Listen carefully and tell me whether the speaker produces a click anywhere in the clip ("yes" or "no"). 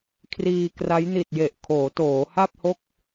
no